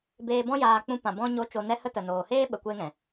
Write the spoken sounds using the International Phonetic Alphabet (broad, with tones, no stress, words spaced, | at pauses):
beː˧bɔ̃˦jaː˧ k͡pũ˧ pã˨bɔ̃˧ɲo˨˦ t͡ʃo˨nɛ˧hə˧ tə˨noː˨heː˦ ɓə˨kʷe˧ŋɛ̃˨